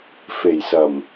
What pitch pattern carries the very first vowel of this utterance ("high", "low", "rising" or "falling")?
low